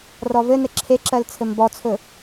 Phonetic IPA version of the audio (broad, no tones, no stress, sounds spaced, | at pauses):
r ɔ v ɘ n ɘ ǁʰ e ǁ ɜ l t͡sʰ ɘ m b ɔ t͡sʰ ɵ